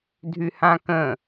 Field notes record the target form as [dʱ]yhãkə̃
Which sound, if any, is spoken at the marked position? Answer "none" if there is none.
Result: dʱ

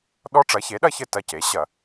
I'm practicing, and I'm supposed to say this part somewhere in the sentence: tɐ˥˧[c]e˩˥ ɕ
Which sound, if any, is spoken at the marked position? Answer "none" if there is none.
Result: c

